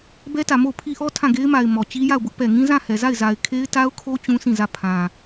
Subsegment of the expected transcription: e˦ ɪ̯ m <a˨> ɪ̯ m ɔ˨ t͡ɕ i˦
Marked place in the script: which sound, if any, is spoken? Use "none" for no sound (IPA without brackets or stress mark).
a˨